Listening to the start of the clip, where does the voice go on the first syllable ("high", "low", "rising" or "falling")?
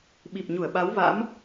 low